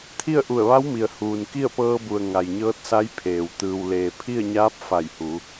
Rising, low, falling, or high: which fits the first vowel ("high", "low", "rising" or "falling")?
falling